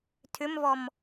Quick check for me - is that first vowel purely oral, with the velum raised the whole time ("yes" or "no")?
yes